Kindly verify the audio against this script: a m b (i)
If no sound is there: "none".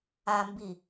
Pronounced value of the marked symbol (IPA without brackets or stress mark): i